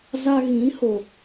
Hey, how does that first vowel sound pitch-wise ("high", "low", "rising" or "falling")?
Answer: high